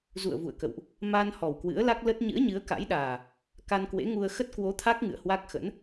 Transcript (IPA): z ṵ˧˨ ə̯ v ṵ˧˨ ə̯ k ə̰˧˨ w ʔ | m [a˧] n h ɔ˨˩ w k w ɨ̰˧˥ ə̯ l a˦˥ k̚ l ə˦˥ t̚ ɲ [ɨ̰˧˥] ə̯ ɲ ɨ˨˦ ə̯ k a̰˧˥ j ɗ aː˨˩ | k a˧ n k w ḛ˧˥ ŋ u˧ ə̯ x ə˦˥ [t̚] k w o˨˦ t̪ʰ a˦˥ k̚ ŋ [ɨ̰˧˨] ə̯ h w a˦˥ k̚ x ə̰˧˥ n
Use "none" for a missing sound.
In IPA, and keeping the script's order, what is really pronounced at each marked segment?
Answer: a˧, ɨ̰˧˥, t̚, ɨ̰˧˨

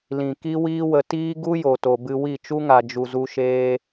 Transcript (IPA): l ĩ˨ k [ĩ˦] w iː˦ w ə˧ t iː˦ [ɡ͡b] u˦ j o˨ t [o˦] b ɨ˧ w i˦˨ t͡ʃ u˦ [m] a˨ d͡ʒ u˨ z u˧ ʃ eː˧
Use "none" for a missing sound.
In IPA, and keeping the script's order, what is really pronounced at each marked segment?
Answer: i˦, ɡ, o˨, ŋ

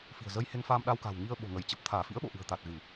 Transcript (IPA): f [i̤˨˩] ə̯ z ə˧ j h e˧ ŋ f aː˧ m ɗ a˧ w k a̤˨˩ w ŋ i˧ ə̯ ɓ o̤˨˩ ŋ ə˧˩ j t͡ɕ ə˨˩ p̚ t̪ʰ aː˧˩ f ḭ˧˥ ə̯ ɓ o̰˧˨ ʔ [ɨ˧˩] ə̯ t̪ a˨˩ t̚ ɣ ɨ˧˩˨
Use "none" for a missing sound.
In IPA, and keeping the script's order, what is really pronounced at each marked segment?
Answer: i̤˨˩, ɨ̤˨˩

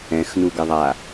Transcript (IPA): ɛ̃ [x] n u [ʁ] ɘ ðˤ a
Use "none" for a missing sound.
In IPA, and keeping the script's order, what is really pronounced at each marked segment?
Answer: x, ɡ

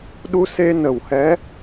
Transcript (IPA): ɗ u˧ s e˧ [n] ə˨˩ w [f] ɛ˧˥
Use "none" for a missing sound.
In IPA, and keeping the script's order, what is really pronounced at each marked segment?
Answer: n, h

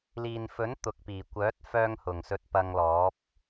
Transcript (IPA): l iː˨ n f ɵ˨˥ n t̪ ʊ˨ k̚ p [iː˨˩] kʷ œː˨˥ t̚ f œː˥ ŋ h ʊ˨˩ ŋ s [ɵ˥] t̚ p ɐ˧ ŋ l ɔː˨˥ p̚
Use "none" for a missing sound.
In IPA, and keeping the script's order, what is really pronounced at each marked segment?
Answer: iː˨˩, ɵ˧

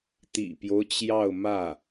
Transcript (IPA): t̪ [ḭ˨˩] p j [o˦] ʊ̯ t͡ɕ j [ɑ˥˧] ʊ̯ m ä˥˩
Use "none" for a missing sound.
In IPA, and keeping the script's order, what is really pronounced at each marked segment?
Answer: ḭ˨˩, o˦, ɑ˥˧

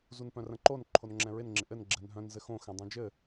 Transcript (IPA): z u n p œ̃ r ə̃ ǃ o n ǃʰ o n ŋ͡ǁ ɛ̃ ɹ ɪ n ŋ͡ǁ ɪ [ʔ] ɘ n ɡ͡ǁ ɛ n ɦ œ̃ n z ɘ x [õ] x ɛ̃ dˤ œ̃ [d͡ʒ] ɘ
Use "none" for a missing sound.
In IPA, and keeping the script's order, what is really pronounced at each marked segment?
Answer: ʔ, õ, d͡ʒ

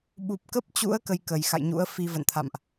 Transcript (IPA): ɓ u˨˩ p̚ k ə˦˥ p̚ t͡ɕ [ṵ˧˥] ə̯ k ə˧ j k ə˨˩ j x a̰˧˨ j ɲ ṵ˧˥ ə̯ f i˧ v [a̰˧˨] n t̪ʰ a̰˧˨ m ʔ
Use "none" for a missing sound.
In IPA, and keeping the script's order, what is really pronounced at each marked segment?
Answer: ṵ˧˥, ə̰˧˨

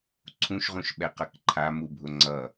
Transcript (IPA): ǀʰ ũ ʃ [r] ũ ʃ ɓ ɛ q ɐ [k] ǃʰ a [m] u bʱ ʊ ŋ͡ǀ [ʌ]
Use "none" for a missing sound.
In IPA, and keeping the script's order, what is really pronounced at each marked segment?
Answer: ʁ, k, m, ʌ

